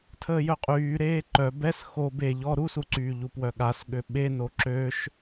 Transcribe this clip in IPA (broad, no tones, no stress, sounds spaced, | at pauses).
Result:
tʰ əː j œ qʼ yː ɾ eː ǃ œ b ɛ s x o b e ʎ ɔ ɾ u s u ǀ yː ʎ u p w œ ɠ a s ɠ ø ɓ e n o ǁ ø ʃ